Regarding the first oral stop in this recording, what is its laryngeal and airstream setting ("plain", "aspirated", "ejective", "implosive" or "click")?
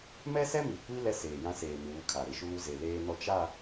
plain